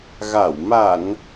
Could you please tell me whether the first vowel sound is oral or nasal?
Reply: oral